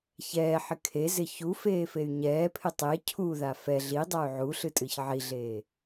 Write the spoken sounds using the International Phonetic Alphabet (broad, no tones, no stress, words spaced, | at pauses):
çɛːħɪ kʰezɪ çufeːfey̯ ɲɛːpʰɪ tˤe cʰuða fɛ ɮidˤay̯ ʕuɬɨtʼɨç ʕiɮeː